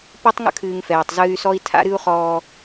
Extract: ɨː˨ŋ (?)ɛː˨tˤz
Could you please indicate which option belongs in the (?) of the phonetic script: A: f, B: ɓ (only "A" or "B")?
A